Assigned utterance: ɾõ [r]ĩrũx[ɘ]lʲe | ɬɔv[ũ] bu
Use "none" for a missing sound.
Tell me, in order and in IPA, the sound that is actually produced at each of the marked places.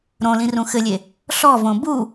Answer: l, ɘ, õ

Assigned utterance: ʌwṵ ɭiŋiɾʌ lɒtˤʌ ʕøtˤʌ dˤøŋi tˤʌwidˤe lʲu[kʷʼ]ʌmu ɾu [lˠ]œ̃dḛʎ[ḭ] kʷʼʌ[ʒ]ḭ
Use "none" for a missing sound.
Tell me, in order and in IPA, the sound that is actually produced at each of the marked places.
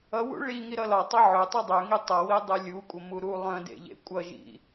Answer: kʷʼ, lˠ, ḛ, ʒ

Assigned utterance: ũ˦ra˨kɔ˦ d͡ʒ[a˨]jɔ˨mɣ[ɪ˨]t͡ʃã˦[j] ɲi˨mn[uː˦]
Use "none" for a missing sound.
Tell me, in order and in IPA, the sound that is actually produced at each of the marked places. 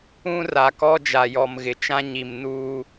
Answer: a˨, ɪ˨, none, uː˦

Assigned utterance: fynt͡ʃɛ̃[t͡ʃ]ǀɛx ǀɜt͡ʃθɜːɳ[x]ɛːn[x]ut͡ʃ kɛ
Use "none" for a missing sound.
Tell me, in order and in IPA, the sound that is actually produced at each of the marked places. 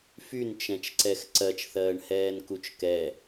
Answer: t͡ʃ, h, k

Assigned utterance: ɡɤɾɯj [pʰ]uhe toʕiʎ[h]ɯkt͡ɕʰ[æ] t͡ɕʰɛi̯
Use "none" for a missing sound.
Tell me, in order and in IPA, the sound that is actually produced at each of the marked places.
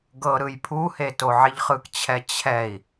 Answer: pʰ, χ, ɛ

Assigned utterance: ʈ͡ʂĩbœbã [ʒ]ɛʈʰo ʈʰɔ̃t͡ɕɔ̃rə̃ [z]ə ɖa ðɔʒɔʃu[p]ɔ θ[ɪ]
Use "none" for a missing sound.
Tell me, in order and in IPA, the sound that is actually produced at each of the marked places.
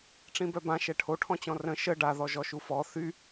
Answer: ʃ, ʃ, f, y

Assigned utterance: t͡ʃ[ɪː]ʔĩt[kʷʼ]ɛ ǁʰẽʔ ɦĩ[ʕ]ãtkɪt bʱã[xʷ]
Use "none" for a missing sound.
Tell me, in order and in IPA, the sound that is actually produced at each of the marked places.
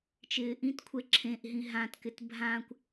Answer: ɪː, kʷʰ, ɦ, kʷ

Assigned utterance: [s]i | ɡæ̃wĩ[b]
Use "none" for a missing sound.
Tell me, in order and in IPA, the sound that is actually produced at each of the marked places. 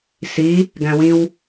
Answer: s, w

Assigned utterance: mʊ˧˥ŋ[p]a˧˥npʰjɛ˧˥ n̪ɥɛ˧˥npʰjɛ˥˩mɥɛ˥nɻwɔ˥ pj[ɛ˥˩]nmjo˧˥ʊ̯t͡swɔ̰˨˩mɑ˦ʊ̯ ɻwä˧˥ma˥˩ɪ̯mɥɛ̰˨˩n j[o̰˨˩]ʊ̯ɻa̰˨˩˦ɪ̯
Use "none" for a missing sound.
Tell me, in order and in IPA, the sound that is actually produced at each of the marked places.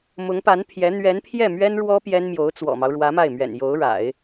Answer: p, ɛ˥, o˧˥

